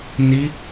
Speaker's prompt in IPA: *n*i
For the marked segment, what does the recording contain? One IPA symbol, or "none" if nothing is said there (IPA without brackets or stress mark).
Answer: n